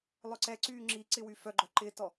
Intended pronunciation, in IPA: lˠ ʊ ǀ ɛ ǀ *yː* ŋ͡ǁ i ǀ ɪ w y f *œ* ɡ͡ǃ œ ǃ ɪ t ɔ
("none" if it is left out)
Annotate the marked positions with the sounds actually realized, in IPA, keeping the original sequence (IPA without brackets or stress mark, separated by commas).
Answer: yː, œ